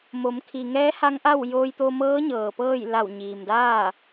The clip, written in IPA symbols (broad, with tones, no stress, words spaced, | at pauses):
mo˩˧mkʰi˩ ŋɛː˧˥ha˧˥ŋʔa˥˨w joː˧jt̪o˧mɤː˧˥ɲɤː˩ pɤː˥˨jla˧˩w ɲiː˩mdaː˥˨